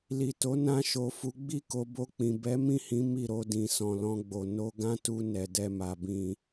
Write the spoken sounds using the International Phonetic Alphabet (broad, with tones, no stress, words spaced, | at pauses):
li˨to˨˦ nã˧ ʃo˨fu˨˦ ɡ͡bi˦˨ko˧bo˧k͡pĩ˨ bɛ˨˦ mĩ˦˨hĩ˨˦ mi˦˨ɾo˧dĩ˨ sɔ̃˨lɔ̃˧ɡ͡bo˨ no˧ɡã˦tu˧ nɛ˨dɛ˧ma˨ bĩ˨